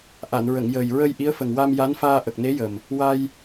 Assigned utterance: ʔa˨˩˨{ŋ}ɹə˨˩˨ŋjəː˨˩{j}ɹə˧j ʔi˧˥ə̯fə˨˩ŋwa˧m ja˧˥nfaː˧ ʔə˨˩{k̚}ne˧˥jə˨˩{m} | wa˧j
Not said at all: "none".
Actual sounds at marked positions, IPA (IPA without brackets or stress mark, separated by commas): n, j, k̚, m